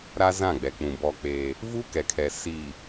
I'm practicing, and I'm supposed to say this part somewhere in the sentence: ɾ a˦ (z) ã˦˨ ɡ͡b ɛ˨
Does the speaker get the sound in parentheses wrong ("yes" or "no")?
no